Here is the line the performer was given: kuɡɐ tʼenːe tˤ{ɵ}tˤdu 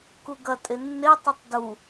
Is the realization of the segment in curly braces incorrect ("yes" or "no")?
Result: no